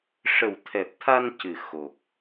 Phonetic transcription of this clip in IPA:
ʂ ə˨˩ w t̪ʰ ɛ˨˩ p̚ t̪ʰ a˧ n c ɨ˨˩ x o˨˩ k̚

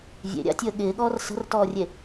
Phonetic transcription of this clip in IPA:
vʲ ḛ ɾʲ a̰ tʲ əː ɠ ɪː ɠ ɔː r s ə̤ r t ɔː rʲ e

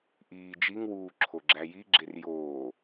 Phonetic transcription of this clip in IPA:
ʔ iː d͡ʒ i ŋ w uː ǁʰ o ɡ͡ǁ æ j i ɡ͡ǁ e r j oː

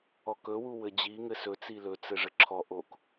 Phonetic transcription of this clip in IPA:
ɔ k ɵ w u w ɘ d͡ʑ i ŋ ɘ s ɵ t͡s i l ɵ t͡s ɘ ʐ ɘ ǁʰ ɔ ʔ o k

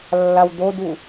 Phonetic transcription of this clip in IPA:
lː a w d̪ o d̪ u

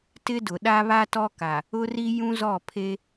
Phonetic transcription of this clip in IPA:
t ɪ˦ d ʊ˨ ɗ a˦ β a˦ t ɔ˦ k a˨ | ʊ˦ r i˦ j ũ˦ z ɔ˦˨ pʰ e˦

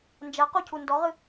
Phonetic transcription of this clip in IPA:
n d͡ʒ ɐ q u cʰ u n d ɔ ʁ ɨ

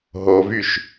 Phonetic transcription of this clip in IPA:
ɦ o v y ʃ

